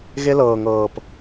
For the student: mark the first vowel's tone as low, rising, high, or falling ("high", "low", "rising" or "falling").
high